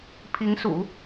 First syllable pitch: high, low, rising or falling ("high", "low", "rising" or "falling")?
rising